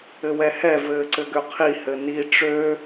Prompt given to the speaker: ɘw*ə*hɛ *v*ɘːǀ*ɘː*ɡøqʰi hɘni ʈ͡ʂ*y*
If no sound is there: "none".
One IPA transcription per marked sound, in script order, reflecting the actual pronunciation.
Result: ɛ, v, ɘ, ø

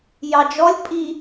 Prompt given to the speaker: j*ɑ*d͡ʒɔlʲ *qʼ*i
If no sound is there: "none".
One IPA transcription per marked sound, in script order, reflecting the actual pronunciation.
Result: ɑ, pʼ

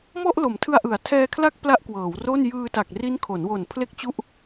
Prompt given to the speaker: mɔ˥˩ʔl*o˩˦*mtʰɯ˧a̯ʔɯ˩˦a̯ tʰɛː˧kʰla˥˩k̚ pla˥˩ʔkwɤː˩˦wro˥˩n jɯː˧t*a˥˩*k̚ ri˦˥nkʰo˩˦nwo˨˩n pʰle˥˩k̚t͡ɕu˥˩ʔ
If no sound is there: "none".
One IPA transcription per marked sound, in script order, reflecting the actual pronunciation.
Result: o˩˦, a˨˩

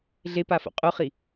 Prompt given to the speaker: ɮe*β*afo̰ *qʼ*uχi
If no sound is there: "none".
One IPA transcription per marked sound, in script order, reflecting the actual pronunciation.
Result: p, qʼ

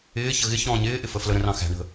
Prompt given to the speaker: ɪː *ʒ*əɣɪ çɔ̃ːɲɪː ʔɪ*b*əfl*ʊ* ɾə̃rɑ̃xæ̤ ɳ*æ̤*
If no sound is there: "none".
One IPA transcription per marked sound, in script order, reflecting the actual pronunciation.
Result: ç, f, ə, ə̤

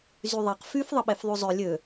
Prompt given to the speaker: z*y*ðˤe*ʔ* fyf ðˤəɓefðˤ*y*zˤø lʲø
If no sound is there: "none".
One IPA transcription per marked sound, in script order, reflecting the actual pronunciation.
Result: y, q, y

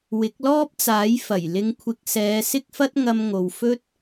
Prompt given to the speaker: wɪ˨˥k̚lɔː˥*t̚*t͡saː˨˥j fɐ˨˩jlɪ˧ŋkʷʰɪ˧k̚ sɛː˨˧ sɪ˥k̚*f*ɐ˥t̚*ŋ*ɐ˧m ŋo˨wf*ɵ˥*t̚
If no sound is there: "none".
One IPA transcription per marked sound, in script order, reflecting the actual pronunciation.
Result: p̚, f, ŋ, ɵ˥

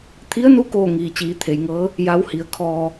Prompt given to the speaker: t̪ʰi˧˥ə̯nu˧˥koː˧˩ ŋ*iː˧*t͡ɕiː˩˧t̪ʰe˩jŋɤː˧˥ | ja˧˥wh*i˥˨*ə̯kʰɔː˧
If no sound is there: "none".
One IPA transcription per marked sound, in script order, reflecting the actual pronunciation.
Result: iː˩, i˩˧

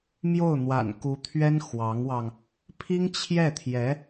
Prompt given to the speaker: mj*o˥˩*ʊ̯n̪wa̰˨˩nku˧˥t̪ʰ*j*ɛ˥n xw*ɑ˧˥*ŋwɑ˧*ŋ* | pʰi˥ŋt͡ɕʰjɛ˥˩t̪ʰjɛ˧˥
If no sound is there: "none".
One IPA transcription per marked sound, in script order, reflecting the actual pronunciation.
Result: o˥˩, ɥ, ɑ˧˥, ŋ

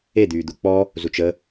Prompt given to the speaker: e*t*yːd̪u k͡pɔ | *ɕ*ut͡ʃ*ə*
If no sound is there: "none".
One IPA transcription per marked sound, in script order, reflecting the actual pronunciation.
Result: d̪, z, ə

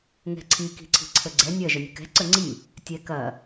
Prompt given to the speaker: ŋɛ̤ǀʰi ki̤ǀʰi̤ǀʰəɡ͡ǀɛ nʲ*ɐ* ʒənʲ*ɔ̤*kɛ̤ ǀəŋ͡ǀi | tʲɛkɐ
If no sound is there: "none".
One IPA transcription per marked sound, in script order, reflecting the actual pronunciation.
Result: ɐ, ə̤

